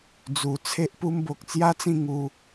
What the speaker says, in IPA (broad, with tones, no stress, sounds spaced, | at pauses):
d͡z u˨˩ t͡sʰ e˦ ʔ p u˦ m b o˨ k̚ t͡s j a˦ t͡s ĩ˥˧ ŋ u˧